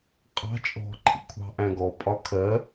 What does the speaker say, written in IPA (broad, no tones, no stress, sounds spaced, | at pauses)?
qʼ ɑ̤ t͡ʃʼ ɔ̤ ǃʰ ḭ kʷʰ ɑ̤ ʔ æ̃ ɡ ɔ pʼ ɒ kʰ ɜ